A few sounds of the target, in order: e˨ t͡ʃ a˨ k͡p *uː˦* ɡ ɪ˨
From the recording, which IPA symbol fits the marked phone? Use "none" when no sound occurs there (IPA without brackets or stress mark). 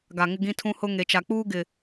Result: uː˦